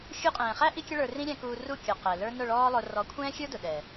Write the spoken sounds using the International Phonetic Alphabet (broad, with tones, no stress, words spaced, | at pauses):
xʲu˧qʼɛ̃ː˨χæ˦ ʔi˦kʲʊ˦ɭə˞˧ rĩ˦ɾʲæ̃˧kuː˧ ru˦˨ kʲɔ˨ qɛ˨lə˞˦ nʊ˦˨ɭɔː˦lˠʊ˧ rɔ˨˦kʷʰɛ̃ː˦xʲə˞˦ dʊ˨ ɗɛ˨